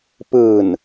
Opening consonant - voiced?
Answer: no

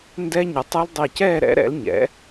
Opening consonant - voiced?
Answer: yes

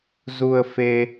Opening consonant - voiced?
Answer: yes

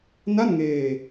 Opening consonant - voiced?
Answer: yes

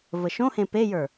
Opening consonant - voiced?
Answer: yes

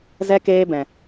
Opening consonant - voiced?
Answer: yes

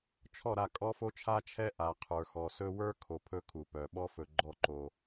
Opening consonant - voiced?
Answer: no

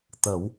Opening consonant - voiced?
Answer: no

